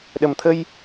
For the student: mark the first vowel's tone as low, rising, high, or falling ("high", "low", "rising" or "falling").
low